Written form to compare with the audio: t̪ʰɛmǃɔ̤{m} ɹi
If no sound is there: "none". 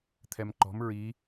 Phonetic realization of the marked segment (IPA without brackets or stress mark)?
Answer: m